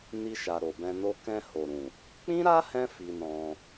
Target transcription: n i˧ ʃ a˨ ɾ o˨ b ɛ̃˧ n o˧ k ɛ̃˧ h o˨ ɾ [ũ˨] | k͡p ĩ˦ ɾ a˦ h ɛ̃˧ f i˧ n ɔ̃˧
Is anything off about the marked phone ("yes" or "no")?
no